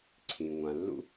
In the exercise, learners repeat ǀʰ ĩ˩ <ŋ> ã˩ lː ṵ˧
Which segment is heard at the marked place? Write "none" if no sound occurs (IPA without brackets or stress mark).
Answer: ŋʷ